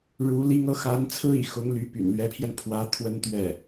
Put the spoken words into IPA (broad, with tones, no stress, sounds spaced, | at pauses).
ɻ u˧˥ l i˥ ŋ ɤ˧˥ x a˧˥ n t͡sʰ ɹ̩˥ ḭ˨˩ x ʊ˧˥ ŋ l y˧˥ p y̰˨˩ n l ɥ ɛ˧˥ pʰ j ɛ˧ n pʰ w ä˧˥ t̪ʰ w ə˥ n t̪ ɥ ɛ˥˩